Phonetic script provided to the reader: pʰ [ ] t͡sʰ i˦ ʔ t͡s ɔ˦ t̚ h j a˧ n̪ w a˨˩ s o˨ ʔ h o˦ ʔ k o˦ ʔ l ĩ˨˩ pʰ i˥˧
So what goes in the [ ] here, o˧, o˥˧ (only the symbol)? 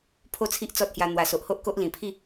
o˥˧